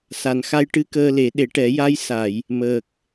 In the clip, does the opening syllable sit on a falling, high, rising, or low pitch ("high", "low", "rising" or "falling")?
low